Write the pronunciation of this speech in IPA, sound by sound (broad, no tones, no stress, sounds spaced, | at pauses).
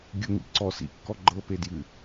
ɡʲ ʊ ŋ ḭ ǀ ɔ s ḭ kː ɔ ɡ͡ǃ ɤ p e d j ɨ